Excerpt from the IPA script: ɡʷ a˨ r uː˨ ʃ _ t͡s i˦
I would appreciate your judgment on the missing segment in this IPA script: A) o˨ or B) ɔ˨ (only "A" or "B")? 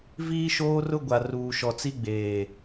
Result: B